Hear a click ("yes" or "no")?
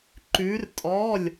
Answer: yes